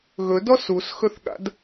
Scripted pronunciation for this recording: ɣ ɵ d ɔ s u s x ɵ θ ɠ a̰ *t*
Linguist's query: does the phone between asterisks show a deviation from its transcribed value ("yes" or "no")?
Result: yes